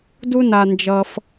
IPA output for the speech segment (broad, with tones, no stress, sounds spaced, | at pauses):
d u˦ n a˨ n d͡ʒ ʌ˨ f